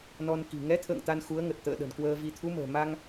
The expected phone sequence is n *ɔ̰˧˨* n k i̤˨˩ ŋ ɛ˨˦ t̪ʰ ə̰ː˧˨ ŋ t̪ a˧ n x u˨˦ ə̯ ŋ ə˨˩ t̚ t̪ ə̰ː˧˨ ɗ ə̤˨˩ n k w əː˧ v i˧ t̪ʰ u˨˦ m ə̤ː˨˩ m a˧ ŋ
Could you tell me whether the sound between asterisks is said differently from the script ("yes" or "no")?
yes